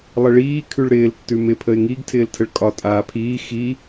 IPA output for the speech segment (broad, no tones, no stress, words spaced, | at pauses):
lˠəɭiː kʰʉɭɾɪːl tːʉmɪ pʰəɪ̯ŋiɡ tʰɪːltʰəɭkʼɒ tʼaːpʰiː xi